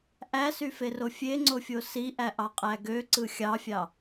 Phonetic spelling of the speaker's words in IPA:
ʔ æ s y f e r o fʲ e ŋ͡ǀ o fʲ o s i ʔ æ ʔ ɑ qʼ æ ɡ ø ǀ ɯ xʲ ɑ fʲ ɑ

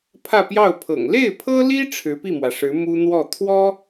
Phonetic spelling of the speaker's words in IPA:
pʰ ä˥˧ p j ɑ˥˩ ʊ̯ pʰ ɤ̰˨˩ ŋ l e˥˩ ɪ̯ pʰ ɤ˥ l i˥ ʈ͡ʂʰ ɻ̩˧˥ p i˥˩ m w ä˩ ʂ ɻ̩˧˥ m u˥ n̪ w ɔ˥˩ t̪ʰ w ɔ˥

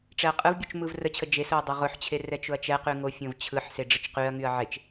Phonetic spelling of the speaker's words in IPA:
ʈ͡ʂ ɛ ɐ̯ qʼ ɯ v bʲ u t͡ʃ m ɯ v r ə t͡ɕʰ ə d͡ʒ e s ʊ ɐ̯ dˤ ʊ ʁ ʊ ħ t͡ɕʰ e r ɛ t͡ʃ ʊ ɐ̯ t͡ʃ ɛ q y ŋ o fʲ õ v t͡ɕʰ ɯ ħ s e ɖ͡ʐ ə t͡ʃ q y ɐ̯ ŋ y ɐ̯ ʕ e t͡ʃ

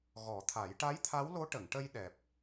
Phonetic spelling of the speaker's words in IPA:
ɣ ɔ˨˩˦ t̪ʰ a˨˩˦ j ʈ a˧˥ j t̪ʰ a˧˥ w l o˧˥ ʈ ə˨˩˨ ŋ ʈ ə˧ j ɗ ɛ˨˩ p̚

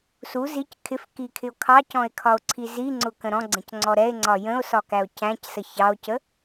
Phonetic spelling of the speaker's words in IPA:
s u z i c kʰ ɪ f k i kʰ ɪ o̯ kʰ ɑ c ɔ̃ e̯ kʰ ɒ o̯ ǀʰ i z i ŋ͡ǀ ʊ k ə̃ ɾ ɔ̃ ɡ͡ǀ ə̃ c ŋ͡ǀ ɔ ɾ ɛ e̯ ŋ͡ǀ ɒ j ə̃ o̯ s ɒ k æ o̯ c æ̃ c s ə ç ɑ o̯ c ə

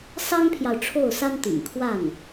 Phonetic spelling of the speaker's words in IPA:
s ɑ˥ ŋ pʰ j ɑ˨ ʊ̯ ʈ͡ʂʰ o˥˩ ʊ̯ s a˥ n t̪ ḭ˨˩ ŋ kʰ w a˥˩ n

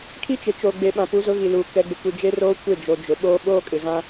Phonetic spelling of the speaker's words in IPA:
kʰ i˦ t͡ʃ ɪ˨ t͡ʃ o˨ ɡ͡b e˨ ɓ ã˨ p u˨˦ z ʊ˨˦ ɣ i˨ l uː˨ k ɛ˨ ɡ͡b ɪ˨ kʷ i˨ d͡ʒ e˦ r oː˦ kʷ e˦˨ d͡ʒ o˨ d͡ʒ ʊ˨ ɓ oː˦ ɓ oː˦ kʼ ɪ˨ ɣ ã˦

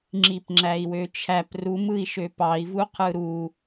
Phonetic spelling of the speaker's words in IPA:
ŋ͡ǁ i p ŋ͡ǁ æ i̯ w ø t͡ʃʰ æ p r u m ɯ i̯ ʃ ø p ɑ i̯ v u qʰ ɯ ɾ u

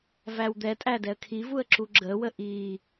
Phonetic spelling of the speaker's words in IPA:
v æ w d̪ ɛ tʼ æ d ɛ ə̯ kʰ i v u ə̯ ǁ u ɡ͡ǁ ə w ə ʔ i

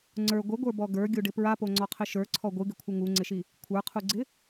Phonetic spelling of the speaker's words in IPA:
ŋ͡ǀ ə˞ ɡʷ ɪ ɡʷ ə˞ b ɔ ɡ ə˞ ɡʲ u ɖ ɪ p ɹ a p o ŋ͡ǀ ɔ qʰ ɪ ʃ ə˞ ǀʰ ɔ ɡʷ ɨ ɡ ɪ kʷʰ ɪ ŋ u ŋ͡ǀ ɪ ʃ i | kʷʰ ə˞ qʰ u ɡ͡ǀ ɪ

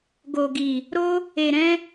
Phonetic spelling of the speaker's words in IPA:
ɡ o˨ ɡ i˨ | ɾ o˦ | e˨ ɾ ɛ̃˧

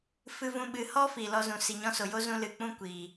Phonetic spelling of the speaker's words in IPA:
f ɨ˦ v ũ˦ ɓ ɨ˧ h ɔ˦ f i˨ l ɔ˧ z ũ˨ s i˨ ɲ ɔ̃˧ s o˨ j o˦ z ũ˧ l ɨ˨ k͡p ũ˦ kʷ iː˨

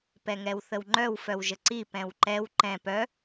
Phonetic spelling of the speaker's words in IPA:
p ɛ ŋ ɛ w θ ə w ŋ͡ǃ œ w f œ w ʒ ə ǀ i p ɛ̃ w ǃ ɛ w ǃ ɛ̃ p œ

